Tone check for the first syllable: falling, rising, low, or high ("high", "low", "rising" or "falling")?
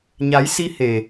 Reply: rising